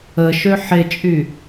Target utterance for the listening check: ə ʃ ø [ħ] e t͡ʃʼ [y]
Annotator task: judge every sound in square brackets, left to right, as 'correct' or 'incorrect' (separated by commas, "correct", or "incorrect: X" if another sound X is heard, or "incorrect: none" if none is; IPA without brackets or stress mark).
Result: correct, correct